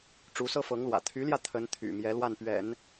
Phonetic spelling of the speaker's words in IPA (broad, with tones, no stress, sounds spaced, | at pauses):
ʈ͡ʂ u˧˥ s ɤ˥ f ɤ˧˥ ŋ l w ä̰˨˩ t̪ʰ y˧˥ l j ä˧ t̪ʰ ə˧˥ n t̪ʰ y̰˨˩ m j ɛ˧˥ l w a˥˩ n p ɥ ɛ̰˨˩˦ n